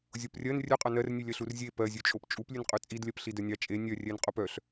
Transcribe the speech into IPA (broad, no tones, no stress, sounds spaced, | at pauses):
zʲ o p rʲ ɜ n rʲ œ qʼ ɑ n ɜ r nʲ ʉ lʲ ɜ ɬ u r zʲ e p ɜ zʲ ʉ t͡ʃʼ o p t͡ʃʼ u p lʲ ʉ n qʼ ʉ t͡sʼ i d lʲ ɜ p ɬ i d œ nʲ ɑ t͡ʃʼ e nʲ œ rʲ ɛ n qʼ o p œ ɬ